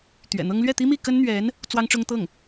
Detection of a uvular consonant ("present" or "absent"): absent